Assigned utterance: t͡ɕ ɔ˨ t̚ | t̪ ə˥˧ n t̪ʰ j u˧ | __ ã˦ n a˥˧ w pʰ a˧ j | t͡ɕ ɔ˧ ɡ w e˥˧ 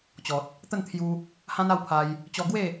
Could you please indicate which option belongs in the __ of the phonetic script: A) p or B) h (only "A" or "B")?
B